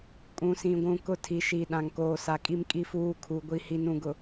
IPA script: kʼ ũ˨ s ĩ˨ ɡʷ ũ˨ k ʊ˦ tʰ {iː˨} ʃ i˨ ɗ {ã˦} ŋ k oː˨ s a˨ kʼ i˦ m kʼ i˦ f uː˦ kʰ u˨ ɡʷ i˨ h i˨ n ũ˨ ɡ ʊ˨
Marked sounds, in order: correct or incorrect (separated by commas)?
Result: incorrect, incorrect